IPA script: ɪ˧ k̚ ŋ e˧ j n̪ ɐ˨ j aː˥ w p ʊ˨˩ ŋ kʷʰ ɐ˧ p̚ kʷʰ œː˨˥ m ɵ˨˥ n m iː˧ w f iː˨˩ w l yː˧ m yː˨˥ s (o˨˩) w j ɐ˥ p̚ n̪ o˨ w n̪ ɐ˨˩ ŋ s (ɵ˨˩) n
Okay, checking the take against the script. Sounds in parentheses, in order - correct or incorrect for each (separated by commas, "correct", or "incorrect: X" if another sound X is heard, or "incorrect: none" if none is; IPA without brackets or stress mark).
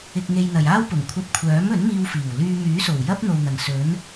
correct, incorrect: ɵ˨˥